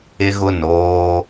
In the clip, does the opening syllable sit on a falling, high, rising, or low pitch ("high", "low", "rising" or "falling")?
high